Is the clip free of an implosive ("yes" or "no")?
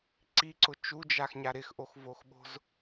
no